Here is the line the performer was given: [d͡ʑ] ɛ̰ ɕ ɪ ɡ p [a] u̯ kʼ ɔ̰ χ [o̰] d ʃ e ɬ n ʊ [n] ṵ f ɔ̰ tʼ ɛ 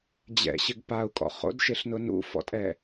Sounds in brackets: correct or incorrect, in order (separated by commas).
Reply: correct, correct, correct, correct